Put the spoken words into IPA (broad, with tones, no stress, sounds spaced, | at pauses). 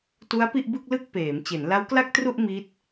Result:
t u˦˥ a̯ p i˥˩ ʔ b ɯ˥˩ k̚ l ɯ˥˩ k̚ p eː˩˦ m t͡ɕ e˩˦ n l a˦˥ w k l a˥˩ k̚ t r u˥˩ ʔ m i˦˥ t̚